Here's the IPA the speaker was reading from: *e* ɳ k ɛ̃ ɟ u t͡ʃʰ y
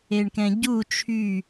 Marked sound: correct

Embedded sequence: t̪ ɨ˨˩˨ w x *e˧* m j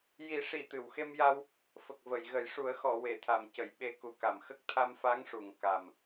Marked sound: correct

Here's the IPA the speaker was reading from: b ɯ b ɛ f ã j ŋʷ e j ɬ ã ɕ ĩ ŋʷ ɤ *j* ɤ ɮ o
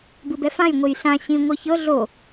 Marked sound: incorrect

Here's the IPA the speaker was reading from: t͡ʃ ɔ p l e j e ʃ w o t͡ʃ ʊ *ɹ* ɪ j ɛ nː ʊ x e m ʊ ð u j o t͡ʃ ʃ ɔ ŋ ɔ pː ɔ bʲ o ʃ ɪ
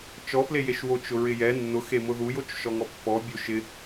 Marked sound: correct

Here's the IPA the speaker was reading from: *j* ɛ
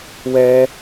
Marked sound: incorrect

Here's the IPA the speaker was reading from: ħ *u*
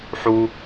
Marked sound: correct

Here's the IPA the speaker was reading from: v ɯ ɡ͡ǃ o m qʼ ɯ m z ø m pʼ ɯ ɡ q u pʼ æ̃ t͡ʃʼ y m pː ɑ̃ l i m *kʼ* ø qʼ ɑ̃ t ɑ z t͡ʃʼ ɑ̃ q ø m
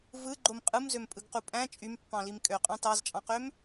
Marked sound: correct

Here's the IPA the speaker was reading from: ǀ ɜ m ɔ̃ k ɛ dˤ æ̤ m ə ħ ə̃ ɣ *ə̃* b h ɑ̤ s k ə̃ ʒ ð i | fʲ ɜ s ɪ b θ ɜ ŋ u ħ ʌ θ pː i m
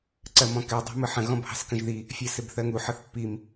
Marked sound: incorrect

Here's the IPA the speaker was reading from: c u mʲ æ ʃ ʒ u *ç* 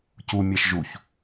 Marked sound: correct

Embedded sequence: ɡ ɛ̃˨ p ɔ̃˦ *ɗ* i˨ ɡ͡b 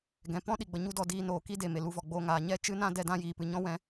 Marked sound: correct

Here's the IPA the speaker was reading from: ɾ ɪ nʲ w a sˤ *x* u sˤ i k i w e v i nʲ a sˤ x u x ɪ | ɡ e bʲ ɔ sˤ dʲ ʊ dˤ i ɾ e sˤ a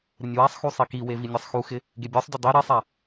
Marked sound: correct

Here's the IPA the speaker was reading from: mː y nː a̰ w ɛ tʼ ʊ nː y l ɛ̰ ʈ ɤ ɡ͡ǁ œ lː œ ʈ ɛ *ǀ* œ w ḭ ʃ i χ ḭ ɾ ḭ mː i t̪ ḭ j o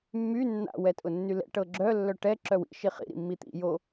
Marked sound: incorrect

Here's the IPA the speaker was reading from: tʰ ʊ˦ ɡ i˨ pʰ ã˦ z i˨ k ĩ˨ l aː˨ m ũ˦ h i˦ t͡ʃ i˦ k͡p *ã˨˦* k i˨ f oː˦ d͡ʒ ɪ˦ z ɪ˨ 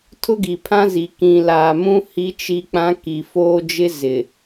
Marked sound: incorrect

